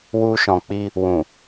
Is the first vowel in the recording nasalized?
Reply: no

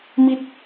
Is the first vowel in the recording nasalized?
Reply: no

